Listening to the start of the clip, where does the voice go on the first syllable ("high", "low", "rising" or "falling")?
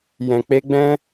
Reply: low